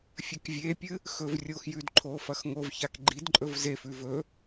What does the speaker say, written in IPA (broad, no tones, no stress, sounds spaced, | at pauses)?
fʲ ɐ k vʲ e pʲ ɨ | x ɵ v rʲ oː x j ʉ d ǃʰ oː f ɐ x ŋ o v ç a k ɡ͡ǃ i d ǃʼ ɵ v z e f ʉ v ɵ